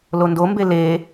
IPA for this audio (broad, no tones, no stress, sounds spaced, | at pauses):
l o n d o m b e l e